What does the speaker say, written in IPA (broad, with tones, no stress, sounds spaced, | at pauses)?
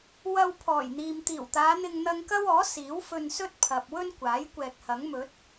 w ɐ˧ w pʰ ɔː˨˩ j n̪ iː˨ m t̪ iː˨˩ w t̪ aː˨˧ n̪ ɪ˧ ŋ n̪ ɐ˧ ŋ k ɐ˥ w ɔː˨˥ s iː˨˥ w f ɵ˧ n s ɵ˥ t̚ pʰ ɐ˨ p̚ w ɵ˥ n kʷ aː˨˥ j kʷ ɛː˨ k̚ h ɐ˨˥ ŋ m ɵ˨˥ t̚